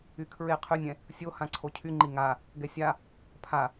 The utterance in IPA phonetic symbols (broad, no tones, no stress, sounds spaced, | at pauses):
y kʰ ɹ e qʰ y nʲ ɛ̃ | sʲ o h ã ǀʰ o cʰ y ŋ͡ǃ i ŋ a | ɡ ɛ sʲ a | pʰ a